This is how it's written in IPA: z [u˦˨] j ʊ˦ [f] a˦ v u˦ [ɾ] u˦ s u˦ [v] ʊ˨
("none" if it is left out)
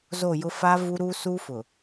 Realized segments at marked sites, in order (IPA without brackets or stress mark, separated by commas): o˦˨, f, ɾ, f